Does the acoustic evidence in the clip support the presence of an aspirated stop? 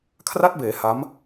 yes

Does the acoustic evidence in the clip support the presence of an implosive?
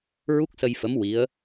no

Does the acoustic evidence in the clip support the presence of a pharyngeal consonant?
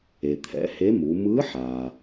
yes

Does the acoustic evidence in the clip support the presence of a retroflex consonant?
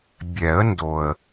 no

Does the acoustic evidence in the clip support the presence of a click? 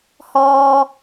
no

